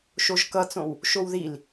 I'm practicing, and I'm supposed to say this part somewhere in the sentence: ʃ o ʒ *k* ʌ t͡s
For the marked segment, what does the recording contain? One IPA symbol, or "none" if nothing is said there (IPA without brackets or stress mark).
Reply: k